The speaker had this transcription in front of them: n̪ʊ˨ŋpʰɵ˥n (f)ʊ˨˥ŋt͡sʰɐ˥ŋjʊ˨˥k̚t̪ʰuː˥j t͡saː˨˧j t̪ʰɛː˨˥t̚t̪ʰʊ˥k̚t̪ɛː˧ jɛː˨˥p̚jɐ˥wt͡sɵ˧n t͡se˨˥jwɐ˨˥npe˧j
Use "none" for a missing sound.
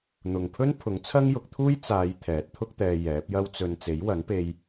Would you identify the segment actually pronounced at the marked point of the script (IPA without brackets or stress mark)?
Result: pʰ